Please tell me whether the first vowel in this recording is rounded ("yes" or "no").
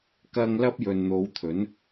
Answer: no